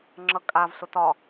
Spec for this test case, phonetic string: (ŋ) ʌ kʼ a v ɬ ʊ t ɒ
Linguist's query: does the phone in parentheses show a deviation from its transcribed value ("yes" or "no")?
yes